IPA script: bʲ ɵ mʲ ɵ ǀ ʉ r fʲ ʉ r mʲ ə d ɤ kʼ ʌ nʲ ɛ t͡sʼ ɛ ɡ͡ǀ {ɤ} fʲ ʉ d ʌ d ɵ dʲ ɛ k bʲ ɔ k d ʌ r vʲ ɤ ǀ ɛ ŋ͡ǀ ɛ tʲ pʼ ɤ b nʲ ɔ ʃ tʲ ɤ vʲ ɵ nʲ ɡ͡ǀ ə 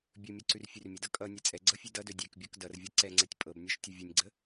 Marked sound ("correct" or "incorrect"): correct